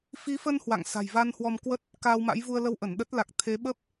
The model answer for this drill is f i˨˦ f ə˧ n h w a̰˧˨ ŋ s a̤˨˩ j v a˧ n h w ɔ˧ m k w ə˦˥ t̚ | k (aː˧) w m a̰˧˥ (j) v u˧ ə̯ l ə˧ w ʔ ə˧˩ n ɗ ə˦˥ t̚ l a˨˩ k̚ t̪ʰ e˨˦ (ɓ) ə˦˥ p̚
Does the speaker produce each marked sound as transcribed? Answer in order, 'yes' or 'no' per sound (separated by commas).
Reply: yes, yes, yes